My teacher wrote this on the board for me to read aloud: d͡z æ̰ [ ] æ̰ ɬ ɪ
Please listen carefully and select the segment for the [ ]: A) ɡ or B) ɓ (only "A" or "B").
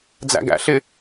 A